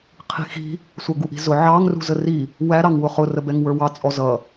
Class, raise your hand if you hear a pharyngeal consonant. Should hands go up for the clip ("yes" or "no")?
yes